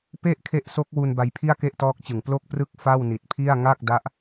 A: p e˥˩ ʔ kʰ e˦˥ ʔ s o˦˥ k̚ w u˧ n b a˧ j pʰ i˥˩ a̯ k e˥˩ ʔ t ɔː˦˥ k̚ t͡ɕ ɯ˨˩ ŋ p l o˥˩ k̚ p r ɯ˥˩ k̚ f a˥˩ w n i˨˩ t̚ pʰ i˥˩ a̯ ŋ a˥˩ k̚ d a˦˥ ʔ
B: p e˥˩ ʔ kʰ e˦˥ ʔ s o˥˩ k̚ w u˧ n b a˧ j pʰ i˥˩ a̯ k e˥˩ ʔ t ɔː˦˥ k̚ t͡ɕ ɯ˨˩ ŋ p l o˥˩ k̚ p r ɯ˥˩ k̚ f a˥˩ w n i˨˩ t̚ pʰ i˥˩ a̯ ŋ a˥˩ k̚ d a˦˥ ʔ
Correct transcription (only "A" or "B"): A